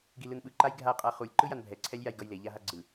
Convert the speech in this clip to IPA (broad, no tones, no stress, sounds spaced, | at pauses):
ɡ i l ɯ n ɓ ɯ ǃ a j ɡʱ a qʼ a χ u lʲ ǃ ɯ j a n bʱ ɛ ǀʰ ɛ lʲ j a j ɡ ʌ j l e ʎ a ɦ a ɡ͡ǀ ɯ